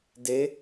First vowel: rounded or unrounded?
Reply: unrounded